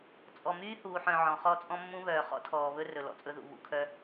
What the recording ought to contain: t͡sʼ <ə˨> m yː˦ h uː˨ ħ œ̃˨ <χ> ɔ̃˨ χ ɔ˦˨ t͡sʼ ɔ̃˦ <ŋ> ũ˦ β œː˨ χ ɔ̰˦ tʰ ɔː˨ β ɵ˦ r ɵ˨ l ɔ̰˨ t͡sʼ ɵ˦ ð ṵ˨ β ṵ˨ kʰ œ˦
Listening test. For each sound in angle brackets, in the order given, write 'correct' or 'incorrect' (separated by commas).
incorrect, incorrect, incorrect